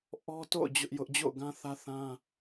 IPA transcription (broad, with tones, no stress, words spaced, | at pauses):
ʔɔ˦to̰˦˨ʊ̯ d͡ʑʊ˦ʔjʊ˦ʔ d͡ʑo̰˦˨ʊ̯ɡã˦ θä˦θã˦